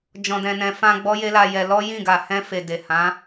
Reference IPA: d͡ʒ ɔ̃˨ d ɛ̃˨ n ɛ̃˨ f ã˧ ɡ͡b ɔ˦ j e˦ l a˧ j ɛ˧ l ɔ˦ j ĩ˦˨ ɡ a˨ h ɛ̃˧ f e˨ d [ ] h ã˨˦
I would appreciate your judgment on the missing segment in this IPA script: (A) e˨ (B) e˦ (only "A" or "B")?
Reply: A